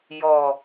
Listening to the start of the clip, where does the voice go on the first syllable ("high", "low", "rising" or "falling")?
low